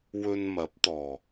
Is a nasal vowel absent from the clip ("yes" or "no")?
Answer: yes